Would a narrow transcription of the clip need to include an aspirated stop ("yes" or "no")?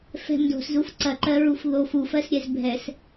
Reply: no